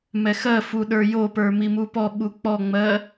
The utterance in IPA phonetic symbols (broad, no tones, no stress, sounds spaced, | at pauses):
m ɛ x ɜ f u ɗ ə˞ j o p ə˞ m i m u p ɔ ɓ u k͡p ɔ ŋ͡m ɜ